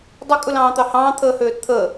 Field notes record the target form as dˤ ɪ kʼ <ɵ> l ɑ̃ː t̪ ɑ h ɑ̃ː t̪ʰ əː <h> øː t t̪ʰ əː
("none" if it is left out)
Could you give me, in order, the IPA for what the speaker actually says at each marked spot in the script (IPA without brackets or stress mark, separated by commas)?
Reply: ɵ, h